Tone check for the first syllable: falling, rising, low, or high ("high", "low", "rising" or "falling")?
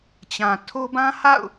low